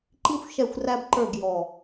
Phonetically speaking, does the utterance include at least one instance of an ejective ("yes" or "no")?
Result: no